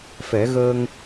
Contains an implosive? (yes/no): no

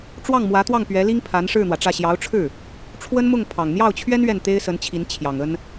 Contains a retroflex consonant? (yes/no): yes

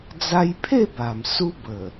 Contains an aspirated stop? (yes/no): yes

